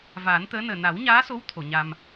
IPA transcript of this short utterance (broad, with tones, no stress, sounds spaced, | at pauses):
v aː˨˩˦ n t̪ əː˧˥ n əː˨˩ n a˨˩˦ w ɲ aː˧˥ s o˧˥ w t̪ʰ o˨˩˨ ɲ a˧ m